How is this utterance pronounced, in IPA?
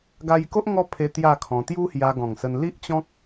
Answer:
ɡ a˧ j k o˦ ʔ ŋ ɔ˦ pʰ e˧ t̪ j a˥˧ kʰ ɔ̃˧ t̪ j u˦ h j a˧ ɡ ɔ̃˨˩ ŋ s ə˧ n l i˦ ʔ t͡ɕ ɔ̃˦ k̚

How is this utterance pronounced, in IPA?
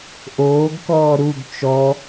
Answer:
ʔ oː ɡ k ɔː ɾ u ɡ t͡ʃ ɔ

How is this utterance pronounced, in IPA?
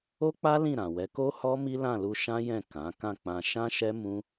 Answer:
o˦ k͡p a˦ l ĩ˦˨ ɾ ã˨ w ɛ˨˦ k o˦ h ɔ˦ m i˦ l ã˦˨ l u˧ ʃ ã˦ j ɛ̃˦˨ k ã˨˦ k ã˦˨ k͡p ã˧ ʃ ã˦ ʃ ɛ˦ m ũ˦

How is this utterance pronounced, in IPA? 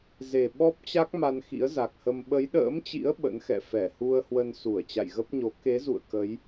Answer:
z e˨˩ ɓ ɔ˦˥ p̚ t͡ɕ a˦˥ k̚ m a˧ n x ḭ˧˥ ə̯ z a˨˩ k̚ h ə˧ m ɓ ə˨˦ j ɗ ə̰ː˧˥ m t͡ɕ ḭ˧˥ ə̯ ɓ ə̰˧˥ n x ɛ̰˧˨ f ɛ˧˩ h u˧ ə̯ h w ə˧ n s u˧˩ ə̯ t͡ɕ a̰˧˨ j ɣ ə˦˥ p̚ ɲ o˨˦ k e˨˦ z ṵ˧˨ ə̯ k ə˨˦ j

